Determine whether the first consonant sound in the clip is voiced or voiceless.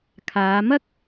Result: voiceless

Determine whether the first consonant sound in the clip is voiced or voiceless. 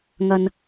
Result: voiced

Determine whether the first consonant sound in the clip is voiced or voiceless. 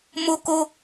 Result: voiced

